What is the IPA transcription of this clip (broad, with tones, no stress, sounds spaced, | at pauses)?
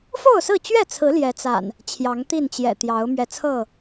f o˥˨ ʊ̯ s ɹ̩˥˨ t͡ɕ ɥ ɛ˥˨ t͡sʰ ɹ̩˨˦ l j ɛ˨˦ t͡s a̰˨˩ n | t͡ɕʰ j ɑ˨˦ ŋ t̪ i˥˨ n t͡ɕ j ɛ̰˨˩ t̪ j ɑ˨˦ ʊ̯ m ɥ ɛ˨˦ t͡sʰ ɤ˥˨